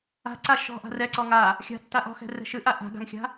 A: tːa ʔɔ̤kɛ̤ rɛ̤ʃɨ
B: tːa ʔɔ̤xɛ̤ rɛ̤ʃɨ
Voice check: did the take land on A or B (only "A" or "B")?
B